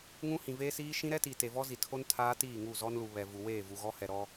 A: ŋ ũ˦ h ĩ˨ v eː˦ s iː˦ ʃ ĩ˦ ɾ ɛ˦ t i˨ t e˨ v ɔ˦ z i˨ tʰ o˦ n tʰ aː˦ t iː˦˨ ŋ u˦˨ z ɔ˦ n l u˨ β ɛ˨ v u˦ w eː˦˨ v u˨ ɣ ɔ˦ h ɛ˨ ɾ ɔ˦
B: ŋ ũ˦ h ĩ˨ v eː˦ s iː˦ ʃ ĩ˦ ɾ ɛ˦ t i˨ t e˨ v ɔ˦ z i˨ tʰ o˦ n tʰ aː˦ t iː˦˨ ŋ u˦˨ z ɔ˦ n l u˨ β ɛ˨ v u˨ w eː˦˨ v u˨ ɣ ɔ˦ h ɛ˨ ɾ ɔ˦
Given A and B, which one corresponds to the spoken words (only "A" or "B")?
B